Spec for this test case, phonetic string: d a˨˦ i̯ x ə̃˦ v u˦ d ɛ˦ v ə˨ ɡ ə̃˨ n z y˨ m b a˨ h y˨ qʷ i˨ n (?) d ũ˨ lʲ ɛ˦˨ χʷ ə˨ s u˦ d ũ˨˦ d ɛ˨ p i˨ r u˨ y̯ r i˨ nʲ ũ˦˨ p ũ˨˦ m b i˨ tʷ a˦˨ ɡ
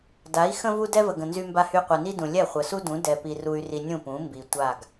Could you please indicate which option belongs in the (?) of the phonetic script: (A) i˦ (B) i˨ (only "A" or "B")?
A